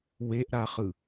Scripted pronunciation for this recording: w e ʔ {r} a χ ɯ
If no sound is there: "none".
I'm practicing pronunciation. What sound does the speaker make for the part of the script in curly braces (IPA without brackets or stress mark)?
ɾ